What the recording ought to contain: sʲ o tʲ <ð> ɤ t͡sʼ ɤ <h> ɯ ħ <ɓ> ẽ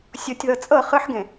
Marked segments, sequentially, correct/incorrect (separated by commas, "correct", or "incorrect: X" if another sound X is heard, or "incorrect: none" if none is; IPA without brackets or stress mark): correct, incorrect: χ, incorrect: ɡ